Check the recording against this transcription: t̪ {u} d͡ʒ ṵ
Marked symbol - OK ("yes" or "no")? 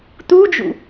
yes